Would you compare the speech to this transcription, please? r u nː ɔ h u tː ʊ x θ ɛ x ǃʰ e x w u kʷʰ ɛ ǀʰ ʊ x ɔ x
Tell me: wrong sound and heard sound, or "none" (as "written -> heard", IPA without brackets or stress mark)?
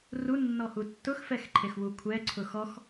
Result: θ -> f